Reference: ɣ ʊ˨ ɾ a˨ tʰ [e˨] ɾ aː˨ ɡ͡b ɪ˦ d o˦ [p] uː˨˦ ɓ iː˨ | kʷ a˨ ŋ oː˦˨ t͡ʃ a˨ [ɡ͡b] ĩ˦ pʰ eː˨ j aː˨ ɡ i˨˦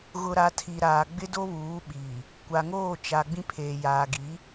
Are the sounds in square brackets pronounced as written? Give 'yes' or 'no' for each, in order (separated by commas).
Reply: no, no, yes